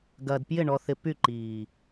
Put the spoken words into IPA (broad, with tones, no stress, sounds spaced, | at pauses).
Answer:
ɡ ɐː˨ d p j ɪ˦˨ ɳ ɔ˨ θ ɪ˨ p y˦˨ ǃ iː˨